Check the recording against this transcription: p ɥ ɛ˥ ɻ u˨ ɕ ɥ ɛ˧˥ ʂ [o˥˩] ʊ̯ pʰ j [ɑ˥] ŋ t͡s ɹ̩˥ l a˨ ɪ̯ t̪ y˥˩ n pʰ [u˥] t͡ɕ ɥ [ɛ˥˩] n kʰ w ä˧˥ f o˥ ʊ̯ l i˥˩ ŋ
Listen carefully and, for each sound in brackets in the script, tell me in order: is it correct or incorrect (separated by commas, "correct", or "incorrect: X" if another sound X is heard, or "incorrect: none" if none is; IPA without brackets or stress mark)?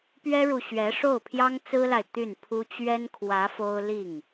correct, correct, correct, incorrect: ɛ˥